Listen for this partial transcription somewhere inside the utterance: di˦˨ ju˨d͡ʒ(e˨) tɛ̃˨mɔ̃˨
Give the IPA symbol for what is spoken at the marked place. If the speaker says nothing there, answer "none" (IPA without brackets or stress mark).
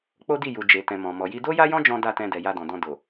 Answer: e˨